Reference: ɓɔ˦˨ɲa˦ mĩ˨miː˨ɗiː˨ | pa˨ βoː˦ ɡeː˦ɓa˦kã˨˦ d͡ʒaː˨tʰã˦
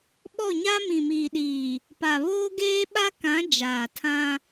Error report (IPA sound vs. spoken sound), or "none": none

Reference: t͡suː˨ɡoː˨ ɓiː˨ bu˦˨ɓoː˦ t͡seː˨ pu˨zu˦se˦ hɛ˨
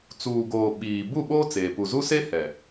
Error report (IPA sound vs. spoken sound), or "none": none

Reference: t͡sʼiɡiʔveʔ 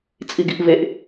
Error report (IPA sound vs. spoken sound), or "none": none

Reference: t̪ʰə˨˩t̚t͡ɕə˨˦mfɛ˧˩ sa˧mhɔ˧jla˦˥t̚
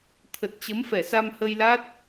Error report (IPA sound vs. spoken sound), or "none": ɔ˧ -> ə˧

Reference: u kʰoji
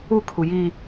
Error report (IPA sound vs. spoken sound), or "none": o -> u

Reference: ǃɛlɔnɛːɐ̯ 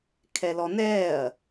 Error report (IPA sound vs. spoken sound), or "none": ǃ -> kʰ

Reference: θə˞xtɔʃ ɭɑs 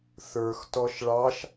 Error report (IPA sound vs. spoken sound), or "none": s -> ʃ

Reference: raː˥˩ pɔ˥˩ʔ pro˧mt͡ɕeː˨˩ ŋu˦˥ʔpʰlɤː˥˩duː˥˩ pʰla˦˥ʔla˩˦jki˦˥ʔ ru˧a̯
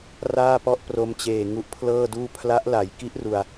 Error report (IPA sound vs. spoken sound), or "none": none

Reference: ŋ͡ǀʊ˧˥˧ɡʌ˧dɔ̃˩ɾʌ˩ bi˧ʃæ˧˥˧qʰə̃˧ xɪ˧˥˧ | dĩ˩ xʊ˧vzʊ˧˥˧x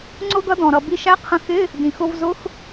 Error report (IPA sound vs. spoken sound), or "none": none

